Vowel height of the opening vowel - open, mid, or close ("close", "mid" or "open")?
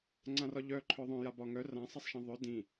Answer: open